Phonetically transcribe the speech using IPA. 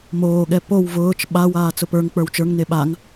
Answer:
m oː ɠ ɛ p o w v ʊː t͡ʃ ɓ a w aː t͡s ʊ p ə˞ ŋ k͡p ə˞ w t͡ʃ ə˞ ŋ n e ɓ a ŋ

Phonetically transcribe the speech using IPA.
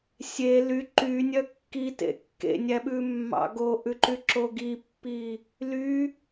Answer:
sʲ e l y ǃ y nʲ œ kː i t ḛ kː ḛ nʲ æ ɓ ʉ mː ɑ̰ ɡ o ʔ ʉ ǃ y ǁ o ɡ i pː i | l y

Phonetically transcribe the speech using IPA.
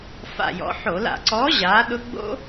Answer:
f a̰˨˩ j ɔ̰˩˧ ħ o˧˩˧ l a̰˧˩˧ ǀ ɔː˨˥ ʑ aː˨˥ ɗ ʊ˦˥ ɡ͡b o̰˦˥

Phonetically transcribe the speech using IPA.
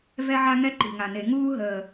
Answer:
v ɛ˥ ʕ a˥ ŋ ɛ˥ ǃ i̤˨˩ ŋ a˨˩ n e˧˩˧ ŋ uː˥ ɦ əː˨˩

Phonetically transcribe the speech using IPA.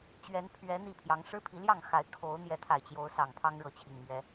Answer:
t͡ɕ ɥ ɛ˨˦ n pʰ ɥ ɛ˨˦ n̪ i˥˨ pʰ j ɑ˨˦ ŋ ʂ ɻ̩˦ pʰ i˨˦ l j ɑ˥˨ ŋ x a˨˦ ɪ̯ kʰ o˨˦ ʊ̯ n̪ j ɛ˨˦ t̪ʰ a˨˩ ɪ̯ t͡ɕ j o˨˦ ʊ̯ s ɑ˨˩ ŋ pʰ ɑ˦ ŋ ɻ ɤ˨˦ t͡ɕʰ i˨˩ ŋ m ɥ ɛ˨˦

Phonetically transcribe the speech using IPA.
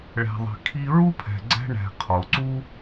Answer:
ɭ æ̤˨ ðˤ i̤˩ kʰ i˦ ɹ u˥ pʰ æ̤˨ ɡ͡ǀ æ̤˦ ɳ æ̤˨ qʰ o˩ ǀ u˥

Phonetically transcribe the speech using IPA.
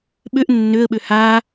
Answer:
ɓ ø ʔ nː ø ə̯ ɓ ø h a

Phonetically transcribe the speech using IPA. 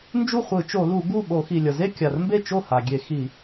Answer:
n d͡ʒ u˥˩ χʷ ɯ˧˩˧ t͡ʃ o˧˩˧ l u˧˩˧ ɡ u˥˩ ɓ o˧˩˧ x i˩ lʲ ʌ˩ z e˥˧ kʲ a˩ r m b e˥˩ t͡ʃ o˥˩ h a˩ ɡʲ e˧˩˧ x i˧˩˧

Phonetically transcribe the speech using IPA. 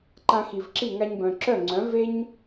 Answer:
ǃ ã˧ x i˩ v ǁ i˥˩ ŋ a˧ ɲ b œ̃˩ ǁ œ˥˩ ŋ͡ǀ œ̃˩˥ v e˥ ɲ

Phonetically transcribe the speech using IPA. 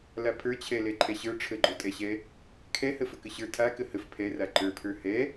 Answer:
l a pʰ ə˞ t͡ɕʰ ɛ l ɛ ǃʰ ɛ ɕ ə˞ ʈ͡ʂʰ ə ɡ͡ǃ o tʼ ɛ ɕ ɛ | kʰ ɛ h ə f ə k ə ɕ ə˞ tʰ a k ə h ə f pʰ ɛ r a ǃ ə˞ pʰ ə˞ h ɛ

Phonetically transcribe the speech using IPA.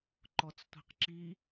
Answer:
ǃ ɔ t͡s tʷ i̤ q ǁ i

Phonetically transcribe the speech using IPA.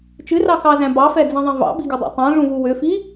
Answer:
t͡ʃ ɨ r ɑ x ɑ z æ̃ b ɑ f ɛ d͡z ĩ ðˤ ɛ̃ v ɑ̰ b i ɡ ʏ dˤ ɑ̰ tˤ æ̃ ʐ ũ v u w ʏ f i

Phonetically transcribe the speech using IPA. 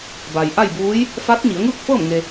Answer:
b a˩ j ʔ a˥˨ j b uː˧˥ j | f a˧˥ t̚ ɲ i˩˧ ə̯ ŋ ɯː˥˨ k̚ f ɤː˥˨ m ŋ e˧

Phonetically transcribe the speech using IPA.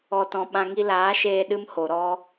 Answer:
ɔ˨ t ɔ̃˨ ɓ ã˧ ŋ i˧ l aː˨˦ ʃ eː˧ ɗ ɨ˦ m h o˨ ɾ ɔ˧

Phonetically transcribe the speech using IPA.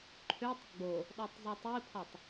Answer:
ǃʰ ø tˤ ɡ͡b o | ɗ ɔ tˤ zˤ o tˤ i pʰ ɔ tˤ

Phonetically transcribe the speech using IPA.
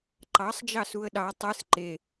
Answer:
ǃ ɑ sˤ d͡ʒ ɑ s u ə̯ ɗ ɑ tˤ ɯ s ǃ e

